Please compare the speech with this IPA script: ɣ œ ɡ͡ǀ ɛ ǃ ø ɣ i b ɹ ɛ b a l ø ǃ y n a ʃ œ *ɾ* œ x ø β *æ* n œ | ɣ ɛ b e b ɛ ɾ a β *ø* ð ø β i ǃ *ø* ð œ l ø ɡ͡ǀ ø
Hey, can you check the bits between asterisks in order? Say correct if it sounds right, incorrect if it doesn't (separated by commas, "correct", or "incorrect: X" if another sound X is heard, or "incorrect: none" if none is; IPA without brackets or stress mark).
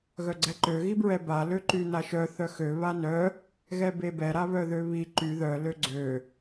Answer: incorrect: θ, incorrect: a, incorrect: œ, incorrect: y